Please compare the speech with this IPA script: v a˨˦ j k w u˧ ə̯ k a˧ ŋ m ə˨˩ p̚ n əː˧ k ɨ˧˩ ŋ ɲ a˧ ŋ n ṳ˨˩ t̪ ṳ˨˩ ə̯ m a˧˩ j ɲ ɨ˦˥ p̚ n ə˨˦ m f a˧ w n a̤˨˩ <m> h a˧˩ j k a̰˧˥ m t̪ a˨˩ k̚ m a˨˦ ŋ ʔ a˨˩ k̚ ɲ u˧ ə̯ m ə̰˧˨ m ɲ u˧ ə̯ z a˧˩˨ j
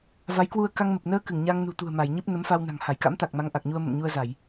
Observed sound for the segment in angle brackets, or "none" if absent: ŋ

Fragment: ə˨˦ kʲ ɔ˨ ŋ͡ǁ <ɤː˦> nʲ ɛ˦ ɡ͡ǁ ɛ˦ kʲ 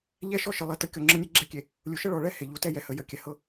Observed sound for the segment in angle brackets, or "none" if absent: ɤ˦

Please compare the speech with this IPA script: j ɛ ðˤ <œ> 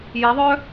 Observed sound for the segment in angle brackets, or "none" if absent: œ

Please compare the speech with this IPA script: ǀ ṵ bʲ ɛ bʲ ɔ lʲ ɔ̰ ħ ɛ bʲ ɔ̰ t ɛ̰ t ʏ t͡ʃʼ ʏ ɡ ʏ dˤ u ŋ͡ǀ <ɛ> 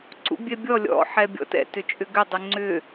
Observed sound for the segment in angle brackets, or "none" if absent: ʏ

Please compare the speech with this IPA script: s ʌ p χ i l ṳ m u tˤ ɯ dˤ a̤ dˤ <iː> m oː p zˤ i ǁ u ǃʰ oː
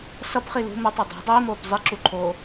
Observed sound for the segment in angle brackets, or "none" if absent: iː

